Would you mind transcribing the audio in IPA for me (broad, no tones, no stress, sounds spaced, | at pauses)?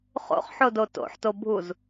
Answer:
χ o̰ χ ħ o d o t o̰ ħ t o bʱ u z